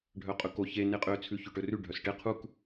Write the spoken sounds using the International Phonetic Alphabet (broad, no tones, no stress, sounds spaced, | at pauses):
ɖʱ œ qʼ ɵ k o ç e n e qʼ ø t͡sʰ ʉ ç ø ʈ ɵ r ʉ ɖʱ œ s ʈ e qʰ u k